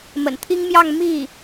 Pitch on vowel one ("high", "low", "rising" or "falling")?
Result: low